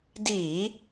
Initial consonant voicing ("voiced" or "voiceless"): voiced